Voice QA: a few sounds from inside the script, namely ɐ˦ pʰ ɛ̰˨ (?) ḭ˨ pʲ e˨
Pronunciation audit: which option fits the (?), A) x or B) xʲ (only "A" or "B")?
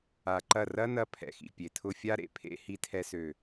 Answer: A